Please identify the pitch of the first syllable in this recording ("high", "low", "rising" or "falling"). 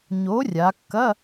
rising